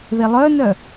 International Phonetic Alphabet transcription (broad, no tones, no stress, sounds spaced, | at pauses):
ð e lˠ œ n œ